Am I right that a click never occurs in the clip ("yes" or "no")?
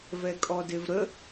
yes